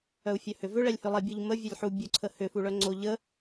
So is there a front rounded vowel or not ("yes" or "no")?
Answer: yes